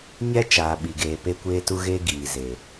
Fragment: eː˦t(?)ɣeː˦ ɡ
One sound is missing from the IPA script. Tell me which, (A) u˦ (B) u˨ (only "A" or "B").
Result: A